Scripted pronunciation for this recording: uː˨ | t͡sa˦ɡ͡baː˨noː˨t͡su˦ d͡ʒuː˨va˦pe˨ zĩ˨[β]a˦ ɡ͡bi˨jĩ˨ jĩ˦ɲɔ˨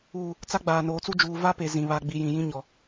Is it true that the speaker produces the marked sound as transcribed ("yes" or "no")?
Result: yes